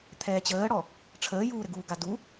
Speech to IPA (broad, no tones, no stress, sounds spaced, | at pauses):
t̪ʰ ɛː t͡ɕ əː ɽ ɔ | ʈ͡ʂʰ əː j uː ɾ ɘ ɡ uː ɡ a d u